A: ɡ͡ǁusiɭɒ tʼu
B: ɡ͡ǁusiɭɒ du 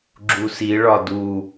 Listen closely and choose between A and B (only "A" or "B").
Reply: B